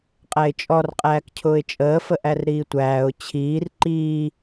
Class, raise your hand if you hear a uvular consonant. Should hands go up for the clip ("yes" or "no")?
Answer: yes